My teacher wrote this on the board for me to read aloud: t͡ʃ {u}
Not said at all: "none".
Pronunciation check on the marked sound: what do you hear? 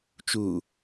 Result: u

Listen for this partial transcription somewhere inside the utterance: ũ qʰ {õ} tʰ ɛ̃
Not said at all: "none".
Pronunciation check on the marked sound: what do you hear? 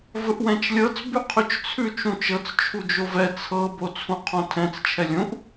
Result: õ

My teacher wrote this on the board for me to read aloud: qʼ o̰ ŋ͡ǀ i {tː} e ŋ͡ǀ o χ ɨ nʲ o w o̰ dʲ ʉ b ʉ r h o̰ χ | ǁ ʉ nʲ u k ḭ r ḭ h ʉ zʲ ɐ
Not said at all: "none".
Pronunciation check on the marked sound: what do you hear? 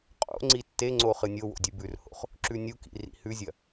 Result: tː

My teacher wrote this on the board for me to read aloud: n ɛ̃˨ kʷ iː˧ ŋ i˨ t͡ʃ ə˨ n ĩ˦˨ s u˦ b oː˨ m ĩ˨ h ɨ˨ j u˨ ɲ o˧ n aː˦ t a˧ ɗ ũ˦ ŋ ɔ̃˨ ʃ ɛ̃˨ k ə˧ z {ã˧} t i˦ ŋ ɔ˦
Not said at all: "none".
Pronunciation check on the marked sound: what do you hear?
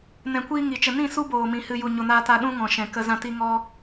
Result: ã˧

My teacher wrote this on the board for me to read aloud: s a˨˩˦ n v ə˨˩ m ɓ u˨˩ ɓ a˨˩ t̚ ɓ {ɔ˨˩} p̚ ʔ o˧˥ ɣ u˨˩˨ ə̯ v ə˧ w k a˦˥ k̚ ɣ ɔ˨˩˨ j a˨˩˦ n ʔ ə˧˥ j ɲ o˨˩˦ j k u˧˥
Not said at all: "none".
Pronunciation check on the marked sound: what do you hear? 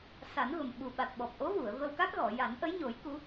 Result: ɔ˨˩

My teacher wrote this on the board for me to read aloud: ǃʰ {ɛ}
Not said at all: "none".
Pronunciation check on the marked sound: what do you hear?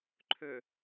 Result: ø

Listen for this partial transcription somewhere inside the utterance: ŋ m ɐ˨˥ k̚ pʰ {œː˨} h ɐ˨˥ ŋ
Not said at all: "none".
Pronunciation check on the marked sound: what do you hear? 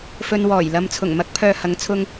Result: œː˨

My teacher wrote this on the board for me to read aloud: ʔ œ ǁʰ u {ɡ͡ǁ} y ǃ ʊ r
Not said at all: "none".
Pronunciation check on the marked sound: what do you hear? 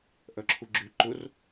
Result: ɡ͡ǁ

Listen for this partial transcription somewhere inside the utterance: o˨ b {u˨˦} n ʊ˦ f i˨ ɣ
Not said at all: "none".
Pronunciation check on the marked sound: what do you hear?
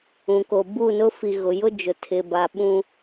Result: u˦˨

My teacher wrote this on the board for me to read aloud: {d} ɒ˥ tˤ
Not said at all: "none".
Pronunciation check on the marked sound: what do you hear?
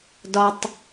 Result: d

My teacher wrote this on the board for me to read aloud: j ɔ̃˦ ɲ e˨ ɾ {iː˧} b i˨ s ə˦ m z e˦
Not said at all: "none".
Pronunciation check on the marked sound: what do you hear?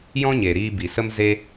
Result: iː˧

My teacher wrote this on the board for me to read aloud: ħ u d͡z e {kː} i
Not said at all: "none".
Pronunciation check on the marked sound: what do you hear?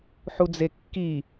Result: kː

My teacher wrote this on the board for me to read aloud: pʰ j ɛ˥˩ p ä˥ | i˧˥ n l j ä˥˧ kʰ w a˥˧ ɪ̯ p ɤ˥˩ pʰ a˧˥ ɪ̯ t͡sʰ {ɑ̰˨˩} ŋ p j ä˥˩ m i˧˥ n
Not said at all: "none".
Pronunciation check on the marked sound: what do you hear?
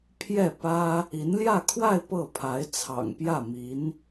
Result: ɑ̰˨˩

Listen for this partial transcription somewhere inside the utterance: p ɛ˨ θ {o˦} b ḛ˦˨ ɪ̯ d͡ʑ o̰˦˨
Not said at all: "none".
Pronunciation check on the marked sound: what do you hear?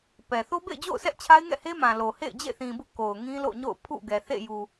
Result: o˦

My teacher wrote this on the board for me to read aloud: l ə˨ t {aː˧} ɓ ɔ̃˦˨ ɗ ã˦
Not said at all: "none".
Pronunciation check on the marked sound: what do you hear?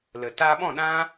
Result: aː˧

